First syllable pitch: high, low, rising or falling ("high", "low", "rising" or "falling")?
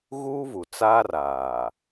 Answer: high